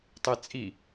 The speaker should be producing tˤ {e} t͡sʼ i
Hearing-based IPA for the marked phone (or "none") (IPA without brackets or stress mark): e